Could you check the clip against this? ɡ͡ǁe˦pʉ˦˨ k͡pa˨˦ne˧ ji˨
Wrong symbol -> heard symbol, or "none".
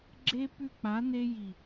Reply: none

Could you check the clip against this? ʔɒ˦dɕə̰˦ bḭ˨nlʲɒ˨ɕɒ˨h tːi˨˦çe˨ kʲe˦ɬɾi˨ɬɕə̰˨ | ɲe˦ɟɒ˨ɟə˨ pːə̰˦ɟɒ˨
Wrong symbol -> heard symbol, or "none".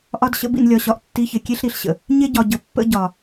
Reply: h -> ʔ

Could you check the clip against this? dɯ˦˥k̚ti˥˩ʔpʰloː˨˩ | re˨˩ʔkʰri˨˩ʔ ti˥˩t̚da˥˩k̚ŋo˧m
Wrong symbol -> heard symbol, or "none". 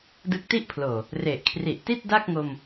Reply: none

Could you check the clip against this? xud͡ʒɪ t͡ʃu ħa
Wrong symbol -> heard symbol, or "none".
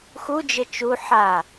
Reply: none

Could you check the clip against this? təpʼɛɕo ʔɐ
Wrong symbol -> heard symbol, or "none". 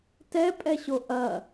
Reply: ə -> ɛ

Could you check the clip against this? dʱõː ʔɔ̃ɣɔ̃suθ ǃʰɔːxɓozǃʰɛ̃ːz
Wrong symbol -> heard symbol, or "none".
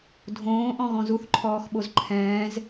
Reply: s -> z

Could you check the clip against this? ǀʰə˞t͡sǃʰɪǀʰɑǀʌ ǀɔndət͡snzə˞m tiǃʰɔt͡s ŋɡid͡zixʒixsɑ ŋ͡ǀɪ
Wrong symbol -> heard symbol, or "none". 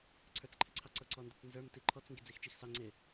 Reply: ʒ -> t͡ʃ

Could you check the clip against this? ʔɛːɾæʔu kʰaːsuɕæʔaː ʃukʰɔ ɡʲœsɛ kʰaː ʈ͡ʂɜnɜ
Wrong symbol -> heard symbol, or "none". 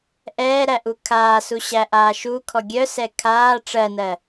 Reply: none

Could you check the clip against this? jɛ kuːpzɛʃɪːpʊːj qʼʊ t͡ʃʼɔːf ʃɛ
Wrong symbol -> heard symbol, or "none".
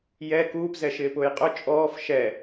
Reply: none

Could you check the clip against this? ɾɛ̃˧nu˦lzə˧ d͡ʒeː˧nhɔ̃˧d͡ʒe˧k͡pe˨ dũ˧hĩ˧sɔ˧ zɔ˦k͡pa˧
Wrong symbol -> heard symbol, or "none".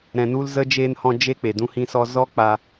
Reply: ə˧ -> ə˦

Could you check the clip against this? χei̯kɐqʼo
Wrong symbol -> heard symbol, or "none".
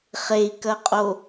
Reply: none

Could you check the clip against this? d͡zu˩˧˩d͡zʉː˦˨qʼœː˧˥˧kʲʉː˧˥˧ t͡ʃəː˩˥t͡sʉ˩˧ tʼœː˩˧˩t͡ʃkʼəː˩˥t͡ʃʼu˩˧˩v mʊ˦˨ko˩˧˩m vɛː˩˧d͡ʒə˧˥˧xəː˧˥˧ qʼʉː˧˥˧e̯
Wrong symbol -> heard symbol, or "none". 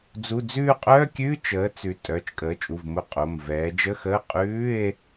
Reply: k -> qʼ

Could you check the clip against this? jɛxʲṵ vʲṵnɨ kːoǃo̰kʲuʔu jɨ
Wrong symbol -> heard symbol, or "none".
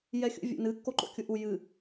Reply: none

